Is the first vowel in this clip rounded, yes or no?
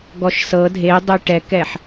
yes